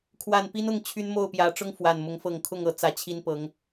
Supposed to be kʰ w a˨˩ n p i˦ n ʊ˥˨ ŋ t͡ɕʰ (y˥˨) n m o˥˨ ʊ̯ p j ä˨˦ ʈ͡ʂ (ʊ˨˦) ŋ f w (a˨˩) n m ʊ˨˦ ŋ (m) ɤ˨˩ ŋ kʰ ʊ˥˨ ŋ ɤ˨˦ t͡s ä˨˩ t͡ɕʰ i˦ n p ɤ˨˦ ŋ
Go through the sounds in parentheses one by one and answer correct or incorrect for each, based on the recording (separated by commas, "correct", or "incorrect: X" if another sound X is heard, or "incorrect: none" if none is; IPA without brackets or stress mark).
incorrect: y˦, incorrect: ʊ˦, correct, incorrect: f